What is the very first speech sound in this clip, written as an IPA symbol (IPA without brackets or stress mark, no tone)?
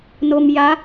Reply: n